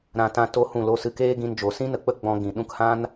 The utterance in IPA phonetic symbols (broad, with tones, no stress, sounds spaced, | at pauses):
ɾ ã˧ t ã˧ t o˦ h ũ˦˨ l o˧ s ɨ˧ k eː˦ ɡ ĩ˧ n d͡ʒ o˨ s ĩ˦ n ə˨ k͡p ə˦ ɡ͡b ɔ̃˧ ɡ ĩ˨ ɗ ũ˧ k h ã˦ n